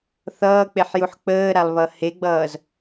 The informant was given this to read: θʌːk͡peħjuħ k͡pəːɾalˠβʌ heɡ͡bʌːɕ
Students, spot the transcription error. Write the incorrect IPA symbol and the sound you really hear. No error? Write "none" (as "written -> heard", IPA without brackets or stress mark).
ɕ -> z